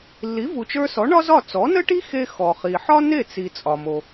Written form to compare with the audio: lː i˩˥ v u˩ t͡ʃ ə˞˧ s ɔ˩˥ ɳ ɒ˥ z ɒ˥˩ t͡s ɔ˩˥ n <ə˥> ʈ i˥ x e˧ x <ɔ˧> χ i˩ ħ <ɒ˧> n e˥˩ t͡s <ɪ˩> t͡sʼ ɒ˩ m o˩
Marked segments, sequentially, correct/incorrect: correct, incorrect, incorrect, incorrect

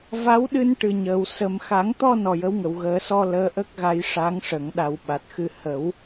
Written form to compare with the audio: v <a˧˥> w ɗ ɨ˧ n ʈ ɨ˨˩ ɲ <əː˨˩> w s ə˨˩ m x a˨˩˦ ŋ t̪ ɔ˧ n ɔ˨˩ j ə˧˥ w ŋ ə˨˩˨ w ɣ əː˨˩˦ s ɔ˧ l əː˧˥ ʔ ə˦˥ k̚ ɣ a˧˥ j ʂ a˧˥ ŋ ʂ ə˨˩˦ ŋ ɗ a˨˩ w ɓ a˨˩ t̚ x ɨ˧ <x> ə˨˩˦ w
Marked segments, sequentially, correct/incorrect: correct, correct, incorrect

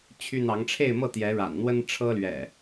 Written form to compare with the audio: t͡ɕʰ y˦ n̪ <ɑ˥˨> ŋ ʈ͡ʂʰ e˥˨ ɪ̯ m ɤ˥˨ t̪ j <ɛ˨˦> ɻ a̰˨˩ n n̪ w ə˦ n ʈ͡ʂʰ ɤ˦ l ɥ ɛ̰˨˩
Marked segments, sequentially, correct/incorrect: incorrect, correct

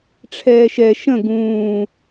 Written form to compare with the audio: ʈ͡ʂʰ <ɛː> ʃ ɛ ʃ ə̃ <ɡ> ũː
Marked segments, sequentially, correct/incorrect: correct, correct

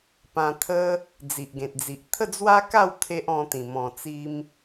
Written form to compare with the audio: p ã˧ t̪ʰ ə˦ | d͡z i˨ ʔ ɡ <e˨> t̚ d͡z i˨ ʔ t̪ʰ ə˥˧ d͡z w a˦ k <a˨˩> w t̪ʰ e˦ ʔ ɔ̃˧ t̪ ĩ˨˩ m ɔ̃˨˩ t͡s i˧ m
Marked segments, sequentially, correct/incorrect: incorrect, incorrect

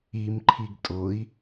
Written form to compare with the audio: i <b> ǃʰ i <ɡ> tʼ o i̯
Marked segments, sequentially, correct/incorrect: incorrect, correct

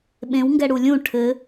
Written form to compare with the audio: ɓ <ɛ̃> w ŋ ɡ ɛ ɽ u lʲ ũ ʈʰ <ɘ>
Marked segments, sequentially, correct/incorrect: incorrect, correct

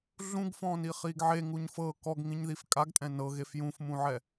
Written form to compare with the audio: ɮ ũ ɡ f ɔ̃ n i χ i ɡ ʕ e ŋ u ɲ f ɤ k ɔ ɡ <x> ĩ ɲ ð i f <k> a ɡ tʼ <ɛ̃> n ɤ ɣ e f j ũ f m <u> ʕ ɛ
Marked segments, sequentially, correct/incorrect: incorrect, incorrect, correct, incorrect

